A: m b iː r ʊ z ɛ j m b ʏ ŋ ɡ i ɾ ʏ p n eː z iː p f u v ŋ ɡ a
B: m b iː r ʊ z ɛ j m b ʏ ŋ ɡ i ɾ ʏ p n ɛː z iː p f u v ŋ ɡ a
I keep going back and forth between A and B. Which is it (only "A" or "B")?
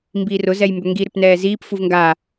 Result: B